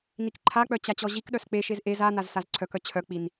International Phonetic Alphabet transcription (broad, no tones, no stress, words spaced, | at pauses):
nikǃʰak͡pœ t͡ɕat͡ɕɔʑikɗœs k͡peʃez ʔez a nazsazǀʰœkœ t͡ɕʰœk͡pin